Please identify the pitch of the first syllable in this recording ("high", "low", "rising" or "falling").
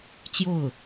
falling